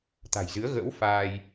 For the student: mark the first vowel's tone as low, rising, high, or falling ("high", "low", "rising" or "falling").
low